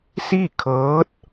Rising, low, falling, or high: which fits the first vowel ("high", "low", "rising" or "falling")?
falling